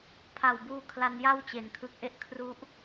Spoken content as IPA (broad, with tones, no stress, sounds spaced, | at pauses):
pʰ a˨˩ w b uː˧ kʰ l a˧ n j a˥˩ w t͡ɕ e˨˩ n kʰ ɯ˨˩ k̚ ʔ e˦˥ ʔ kʰ r u˦˥ ʔ